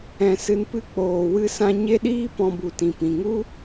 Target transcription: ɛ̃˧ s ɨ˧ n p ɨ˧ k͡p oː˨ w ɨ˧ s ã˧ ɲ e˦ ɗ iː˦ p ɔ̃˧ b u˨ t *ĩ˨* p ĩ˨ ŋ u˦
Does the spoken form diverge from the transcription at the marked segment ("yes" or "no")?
no